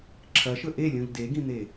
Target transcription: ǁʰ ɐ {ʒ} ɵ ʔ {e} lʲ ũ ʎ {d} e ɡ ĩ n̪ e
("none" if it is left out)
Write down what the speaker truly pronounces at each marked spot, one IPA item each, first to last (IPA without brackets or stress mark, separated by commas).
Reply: ʃ, e, d